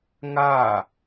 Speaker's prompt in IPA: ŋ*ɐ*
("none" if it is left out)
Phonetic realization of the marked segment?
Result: a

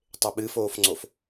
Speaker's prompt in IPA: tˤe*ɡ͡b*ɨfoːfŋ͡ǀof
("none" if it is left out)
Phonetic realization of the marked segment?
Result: ɓ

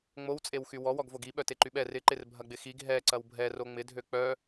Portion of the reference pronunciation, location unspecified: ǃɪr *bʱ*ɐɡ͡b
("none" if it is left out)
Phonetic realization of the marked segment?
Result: bʱ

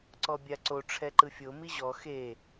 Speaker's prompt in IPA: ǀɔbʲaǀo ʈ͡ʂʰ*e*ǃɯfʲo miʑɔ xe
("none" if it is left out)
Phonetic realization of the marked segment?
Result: ɛ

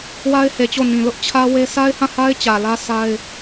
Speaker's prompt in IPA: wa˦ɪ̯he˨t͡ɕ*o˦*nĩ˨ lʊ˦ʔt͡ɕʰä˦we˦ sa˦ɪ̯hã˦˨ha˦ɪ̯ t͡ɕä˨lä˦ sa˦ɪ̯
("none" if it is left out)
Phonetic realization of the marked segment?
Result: o˦˨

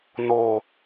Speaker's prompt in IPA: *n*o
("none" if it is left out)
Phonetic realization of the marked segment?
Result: n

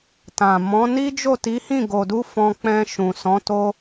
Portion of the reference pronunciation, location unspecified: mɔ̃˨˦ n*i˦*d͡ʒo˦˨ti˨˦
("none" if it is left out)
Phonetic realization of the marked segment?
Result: i˦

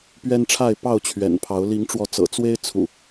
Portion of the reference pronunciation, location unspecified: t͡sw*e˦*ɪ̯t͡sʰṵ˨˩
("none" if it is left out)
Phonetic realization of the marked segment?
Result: e˦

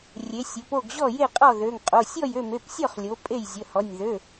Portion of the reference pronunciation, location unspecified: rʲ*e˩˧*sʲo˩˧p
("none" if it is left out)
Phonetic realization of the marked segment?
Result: e˩˧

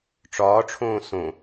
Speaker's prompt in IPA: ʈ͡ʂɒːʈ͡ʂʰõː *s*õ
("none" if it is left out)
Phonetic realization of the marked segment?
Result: s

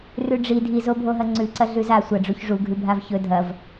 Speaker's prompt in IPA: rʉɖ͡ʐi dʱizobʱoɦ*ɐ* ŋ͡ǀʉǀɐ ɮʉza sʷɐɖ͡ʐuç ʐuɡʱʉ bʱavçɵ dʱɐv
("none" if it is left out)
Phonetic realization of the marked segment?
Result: ɐ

